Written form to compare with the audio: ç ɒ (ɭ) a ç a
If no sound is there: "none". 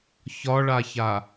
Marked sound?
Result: ɭ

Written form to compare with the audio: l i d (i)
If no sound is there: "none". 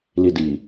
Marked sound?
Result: i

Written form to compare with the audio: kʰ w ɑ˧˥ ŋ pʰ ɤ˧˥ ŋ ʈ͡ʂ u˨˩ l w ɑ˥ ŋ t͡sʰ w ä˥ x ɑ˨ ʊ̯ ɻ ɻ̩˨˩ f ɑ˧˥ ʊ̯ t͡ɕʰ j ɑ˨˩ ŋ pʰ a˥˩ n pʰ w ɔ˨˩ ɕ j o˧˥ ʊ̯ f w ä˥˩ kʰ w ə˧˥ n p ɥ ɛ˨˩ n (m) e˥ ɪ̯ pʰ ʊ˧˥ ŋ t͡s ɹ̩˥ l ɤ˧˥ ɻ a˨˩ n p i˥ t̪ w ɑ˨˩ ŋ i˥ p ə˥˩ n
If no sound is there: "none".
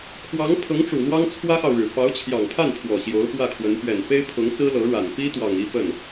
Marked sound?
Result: f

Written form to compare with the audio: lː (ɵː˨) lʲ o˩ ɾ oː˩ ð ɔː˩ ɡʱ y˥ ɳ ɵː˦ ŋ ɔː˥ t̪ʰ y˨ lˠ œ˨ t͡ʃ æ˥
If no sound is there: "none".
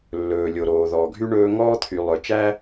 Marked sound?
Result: ɵː˩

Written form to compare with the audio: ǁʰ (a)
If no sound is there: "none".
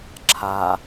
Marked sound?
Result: a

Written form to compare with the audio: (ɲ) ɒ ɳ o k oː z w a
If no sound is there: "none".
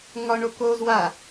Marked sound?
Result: ŋ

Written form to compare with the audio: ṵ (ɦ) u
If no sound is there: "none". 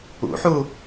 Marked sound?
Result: ħ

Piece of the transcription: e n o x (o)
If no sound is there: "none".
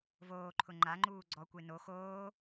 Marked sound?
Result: oː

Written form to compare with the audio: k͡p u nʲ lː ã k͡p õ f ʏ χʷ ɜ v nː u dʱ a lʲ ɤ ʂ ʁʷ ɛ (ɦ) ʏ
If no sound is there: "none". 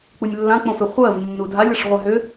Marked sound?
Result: ɦ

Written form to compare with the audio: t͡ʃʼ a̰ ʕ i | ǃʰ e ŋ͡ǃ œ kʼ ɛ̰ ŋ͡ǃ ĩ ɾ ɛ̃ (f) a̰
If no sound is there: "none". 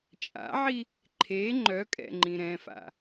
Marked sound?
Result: f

